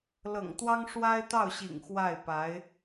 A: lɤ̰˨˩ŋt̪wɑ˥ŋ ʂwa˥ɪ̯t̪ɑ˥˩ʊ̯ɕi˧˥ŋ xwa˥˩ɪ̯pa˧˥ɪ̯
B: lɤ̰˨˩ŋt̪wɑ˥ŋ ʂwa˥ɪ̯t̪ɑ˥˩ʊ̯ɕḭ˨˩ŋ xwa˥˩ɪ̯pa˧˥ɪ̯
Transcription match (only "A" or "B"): B